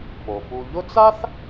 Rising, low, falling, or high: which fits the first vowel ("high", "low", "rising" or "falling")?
low